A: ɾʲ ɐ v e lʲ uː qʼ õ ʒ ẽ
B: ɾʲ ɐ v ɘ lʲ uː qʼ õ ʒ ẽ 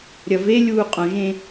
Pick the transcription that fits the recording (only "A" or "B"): A